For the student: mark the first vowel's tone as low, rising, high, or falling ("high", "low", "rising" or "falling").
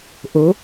rising